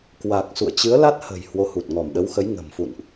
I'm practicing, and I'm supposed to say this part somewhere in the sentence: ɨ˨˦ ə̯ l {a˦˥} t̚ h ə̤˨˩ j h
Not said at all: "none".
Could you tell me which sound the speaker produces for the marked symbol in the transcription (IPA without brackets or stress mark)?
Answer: a˦˥